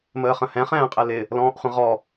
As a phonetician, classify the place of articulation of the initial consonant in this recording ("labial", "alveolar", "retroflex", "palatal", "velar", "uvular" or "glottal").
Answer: labial